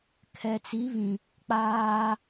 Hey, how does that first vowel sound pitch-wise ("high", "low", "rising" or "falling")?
low